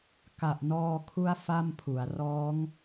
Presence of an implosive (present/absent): absent